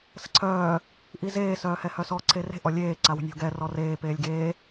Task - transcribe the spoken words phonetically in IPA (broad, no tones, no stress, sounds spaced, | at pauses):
s ə̤ ǀʰ œː | ʔ i z eː s œː h ɛ h œ s ɔ ǀʰ e r e̤ ʔ ɔ lʲ eː ǀ a w ə̤ nʲ o̤ ɡ ɛ r ɔ r eː p eː lʲ ɡ eː